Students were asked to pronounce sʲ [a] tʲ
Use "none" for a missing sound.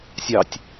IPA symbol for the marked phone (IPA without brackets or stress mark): ɑ